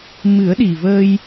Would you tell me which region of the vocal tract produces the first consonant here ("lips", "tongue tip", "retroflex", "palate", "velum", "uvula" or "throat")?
lips